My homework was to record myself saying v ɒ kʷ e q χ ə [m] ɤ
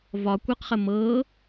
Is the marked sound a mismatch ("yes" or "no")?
no